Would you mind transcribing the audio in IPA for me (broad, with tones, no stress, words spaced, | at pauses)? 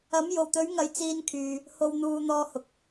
ɐ˨˥mjo˨˩wt̪ɵ˨˥ɥŋɐ˨˧j t͡siː˧nkʰyː˨ | ho˧wn̪uː˧ n̪ɔː˧hʊ˨k̚